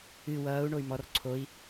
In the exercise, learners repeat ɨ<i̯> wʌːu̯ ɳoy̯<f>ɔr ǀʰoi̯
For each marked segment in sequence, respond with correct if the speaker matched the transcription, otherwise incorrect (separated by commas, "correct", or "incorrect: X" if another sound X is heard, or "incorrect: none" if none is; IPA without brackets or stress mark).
incorrect: none, incorrect: m